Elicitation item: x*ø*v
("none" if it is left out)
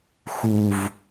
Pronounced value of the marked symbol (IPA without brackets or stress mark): u